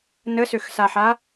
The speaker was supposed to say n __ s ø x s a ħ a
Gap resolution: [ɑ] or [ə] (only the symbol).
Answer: ə